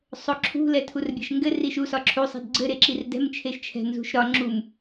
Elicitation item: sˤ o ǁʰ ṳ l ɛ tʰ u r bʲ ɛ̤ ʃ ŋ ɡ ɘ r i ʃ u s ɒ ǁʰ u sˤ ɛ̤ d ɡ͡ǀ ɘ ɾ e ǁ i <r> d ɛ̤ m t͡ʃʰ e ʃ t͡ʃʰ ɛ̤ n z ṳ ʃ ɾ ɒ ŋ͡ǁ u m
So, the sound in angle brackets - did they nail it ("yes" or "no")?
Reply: yes